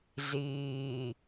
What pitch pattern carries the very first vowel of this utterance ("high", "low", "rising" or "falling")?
low